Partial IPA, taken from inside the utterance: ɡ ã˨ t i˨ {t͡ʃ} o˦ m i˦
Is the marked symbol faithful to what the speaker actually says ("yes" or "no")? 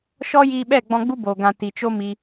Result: yes